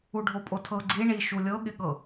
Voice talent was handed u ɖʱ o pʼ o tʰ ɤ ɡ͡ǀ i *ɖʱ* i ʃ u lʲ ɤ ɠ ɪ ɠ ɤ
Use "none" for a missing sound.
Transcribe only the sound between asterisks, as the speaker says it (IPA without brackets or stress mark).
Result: ɳ